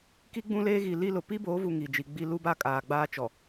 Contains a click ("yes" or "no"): no